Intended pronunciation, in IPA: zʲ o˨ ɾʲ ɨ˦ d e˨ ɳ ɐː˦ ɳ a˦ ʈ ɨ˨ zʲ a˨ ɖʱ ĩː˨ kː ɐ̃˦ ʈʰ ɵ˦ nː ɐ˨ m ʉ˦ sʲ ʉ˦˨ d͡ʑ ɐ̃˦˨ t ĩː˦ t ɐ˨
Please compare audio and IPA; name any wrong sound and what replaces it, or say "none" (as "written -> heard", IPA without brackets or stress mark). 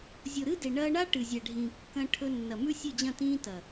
ɾʲ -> ɾ